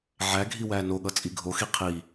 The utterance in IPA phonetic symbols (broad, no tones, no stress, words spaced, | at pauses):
ʕæɡʱi wænoɠʌ t͡sʼiɡʱoxi qʰi